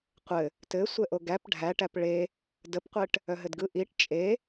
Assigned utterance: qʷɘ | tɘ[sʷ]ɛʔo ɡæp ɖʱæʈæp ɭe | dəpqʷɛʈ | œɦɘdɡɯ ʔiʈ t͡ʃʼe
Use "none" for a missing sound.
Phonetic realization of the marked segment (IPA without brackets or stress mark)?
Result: sʷ